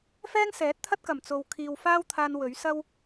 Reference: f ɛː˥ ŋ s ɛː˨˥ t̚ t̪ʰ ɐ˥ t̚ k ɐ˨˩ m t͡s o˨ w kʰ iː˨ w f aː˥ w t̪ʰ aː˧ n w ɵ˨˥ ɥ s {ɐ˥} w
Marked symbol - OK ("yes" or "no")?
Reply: yes